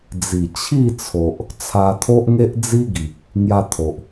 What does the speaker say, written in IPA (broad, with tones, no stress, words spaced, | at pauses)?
d͡zi˨˩t͡ɕʰi˥˧t͡sʰo˨ʔ | t͡sʰa˧t̪ʰo˦ʔŋe˦ʔd͡zi˦ ɡi˨k̚ | ŋja˧t̪ʰo˨ʔ